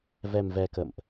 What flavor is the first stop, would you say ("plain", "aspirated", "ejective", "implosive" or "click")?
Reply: plain